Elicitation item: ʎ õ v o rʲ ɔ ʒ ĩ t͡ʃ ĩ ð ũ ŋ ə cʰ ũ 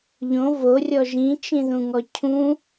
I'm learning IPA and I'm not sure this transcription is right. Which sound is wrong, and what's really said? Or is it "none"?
ə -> ɔ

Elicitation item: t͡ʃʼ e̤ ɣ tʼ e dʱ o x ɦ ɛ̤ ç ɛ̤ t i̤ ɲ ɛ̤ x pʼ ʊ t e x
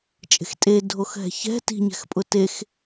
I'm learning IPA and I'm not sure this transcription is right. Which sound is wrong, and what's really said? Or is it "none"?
ɣ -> x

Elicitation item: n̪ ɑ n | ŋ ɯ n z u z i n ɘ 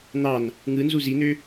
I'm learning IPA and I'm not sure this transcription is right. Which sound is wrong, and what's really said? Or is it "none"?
ɘ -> ø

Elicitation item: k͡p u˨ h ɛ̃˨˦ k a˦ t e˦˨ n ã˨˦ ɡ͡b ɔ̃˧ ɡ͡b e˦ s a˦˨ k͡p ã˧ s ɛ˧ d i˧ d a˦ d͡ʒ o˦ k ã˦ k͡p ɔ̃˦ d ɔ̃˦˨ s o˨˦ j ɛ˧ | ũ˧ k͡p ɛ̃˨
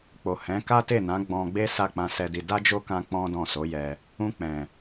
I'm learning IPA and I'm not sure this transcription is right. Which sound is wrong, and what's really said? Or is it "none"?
u˨ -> o˨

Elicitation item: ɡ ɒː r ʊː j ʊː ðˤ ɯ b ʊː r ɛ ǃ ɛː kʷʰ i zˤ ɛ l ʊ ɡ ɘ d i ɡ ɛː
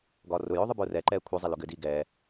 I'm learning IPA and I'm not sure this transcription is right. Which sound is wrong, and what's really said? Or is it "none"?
none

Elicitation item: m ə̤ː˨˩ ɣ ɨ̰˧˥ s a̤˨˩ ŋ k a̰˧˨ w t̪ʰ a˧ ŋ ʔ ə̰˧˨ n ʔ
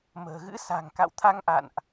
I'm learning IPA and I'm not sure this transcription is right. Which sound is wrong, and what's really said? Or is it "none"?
ə̰˧˨ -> a̰˧˨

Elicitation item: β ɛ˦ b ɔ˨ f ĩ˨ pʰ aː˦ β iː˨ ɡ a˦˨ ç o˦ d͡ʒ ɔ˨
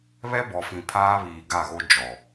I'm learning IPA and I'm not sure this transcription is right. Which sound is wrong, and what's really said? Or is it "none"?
ç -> ɣ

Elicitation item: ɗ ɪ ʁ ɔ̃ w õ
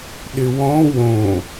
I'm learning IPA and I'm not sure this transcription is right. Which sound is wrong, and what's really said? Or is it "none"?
ʁ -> w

